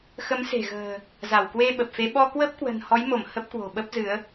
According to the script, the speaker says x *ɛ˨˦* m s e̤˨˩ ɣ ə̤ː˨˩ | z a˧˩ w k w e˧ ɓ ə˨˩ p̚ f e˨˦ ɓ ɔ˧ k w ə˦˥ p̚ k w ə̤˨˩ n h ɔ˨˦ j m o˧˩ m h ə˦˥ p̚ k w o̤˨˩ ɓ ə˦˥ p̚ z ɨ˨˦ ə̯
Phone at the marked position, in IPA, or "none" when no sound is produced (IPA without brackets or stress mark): ə˨˦